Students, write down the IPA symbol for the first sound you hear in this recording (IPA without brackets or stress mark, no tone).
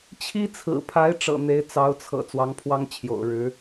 t͡ɕʰ